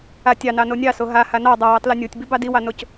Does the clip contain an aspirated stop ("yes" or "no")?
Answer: no